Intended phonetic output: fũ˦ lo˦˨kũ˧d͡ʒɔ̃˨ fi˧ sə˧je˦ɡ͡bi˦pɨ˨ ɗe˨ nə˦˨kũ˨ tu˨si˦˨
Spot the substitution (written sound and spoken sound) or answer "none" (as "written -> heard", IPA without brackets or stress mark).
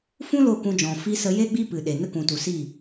none